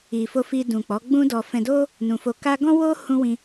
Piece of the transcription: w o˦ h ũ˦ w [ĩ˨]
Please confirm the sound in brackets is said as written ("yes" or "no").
no